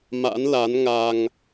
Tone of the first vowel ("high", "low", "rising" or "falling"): rising